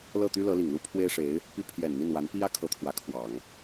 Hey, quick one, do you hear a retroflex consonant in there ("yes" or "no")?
yes